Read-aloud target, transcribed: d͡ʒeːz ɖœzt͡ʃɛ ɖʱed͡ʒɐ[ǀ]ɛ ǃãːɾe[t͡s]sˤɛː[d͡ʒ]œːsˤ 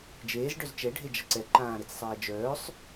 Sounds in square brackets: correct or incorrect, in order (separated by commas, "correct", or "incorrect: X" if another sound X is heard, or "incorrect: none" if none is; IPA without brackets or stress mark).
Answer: correct, correct, correct